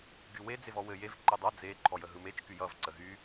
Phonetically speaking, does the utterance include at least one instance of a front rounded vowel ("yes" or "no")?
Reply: yes